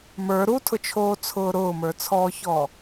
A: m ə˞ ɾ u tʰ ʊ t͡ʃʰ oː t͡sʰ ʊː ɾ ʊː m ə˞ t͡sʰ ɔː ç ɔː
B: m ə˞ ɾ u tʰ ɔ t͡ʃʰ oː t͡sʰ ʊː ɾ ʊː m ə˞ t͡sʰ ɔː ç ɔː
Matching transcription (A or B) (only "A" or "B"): A